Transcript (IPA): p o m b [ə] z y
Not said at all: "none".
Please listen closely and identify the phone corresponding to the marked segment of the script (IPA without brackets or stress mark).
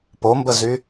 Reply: ə